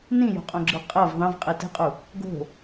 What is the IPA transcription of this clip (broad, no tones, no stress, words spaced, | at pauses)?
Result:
nĩjo̤qʼõɡ͡ǁɯ qʼɤv ðˤɛ̃vqʼi tɛ̤qʼu | ɡo̤